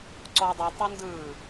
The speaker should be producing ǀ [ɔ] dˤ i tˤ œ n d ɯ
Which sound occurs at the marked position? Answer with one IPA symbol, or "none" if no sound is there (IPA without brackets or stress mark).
ɔ